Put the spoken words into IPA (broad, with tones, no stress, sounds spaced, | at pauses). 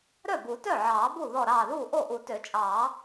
ɾ œ˥˩ b u˨˩˦ t œ˥˩ ʕ ɑː˨˩˦ b u˥˩ ð ɔ˥˩ ɾ ɑː˥˩ ð uː˥˩ ʔ o˥˩ ʔ u˨˩˦ t ø˨˩˦ t͡ʃʼ ɑː˨˩˦